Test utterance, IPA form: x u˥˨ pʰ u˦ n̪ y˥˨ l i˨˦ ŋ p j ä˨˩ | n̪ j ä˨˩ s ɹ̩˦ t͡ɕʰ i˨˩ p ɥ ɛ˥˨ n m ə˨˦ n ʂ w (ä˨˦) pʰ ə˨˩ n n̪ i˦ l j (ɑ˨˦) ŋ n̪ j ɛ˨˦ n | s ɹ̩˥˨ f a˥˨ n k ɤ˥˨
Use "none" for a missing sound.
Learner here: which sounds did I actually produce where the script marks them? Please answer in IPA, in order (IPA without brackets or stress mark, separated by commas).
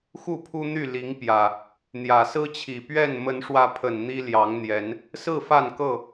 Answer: ä˨˦, ɑ˨˦